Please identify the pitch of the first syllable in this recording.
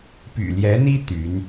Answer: low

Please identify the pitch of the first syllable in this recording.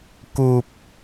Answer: low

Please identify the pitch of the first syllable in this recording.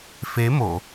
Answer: rising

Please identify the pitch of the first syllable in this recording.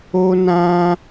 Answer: high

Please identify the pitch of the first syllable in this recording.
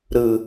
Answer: low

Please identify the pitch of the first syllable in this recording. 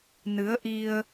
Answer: rising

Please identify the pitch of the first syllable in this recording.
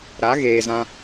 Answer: rising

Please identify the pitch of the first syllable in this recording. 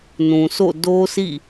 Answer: low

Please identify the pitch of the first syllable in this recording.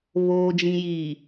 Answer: low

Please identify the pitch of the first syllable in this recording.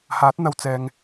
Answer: rising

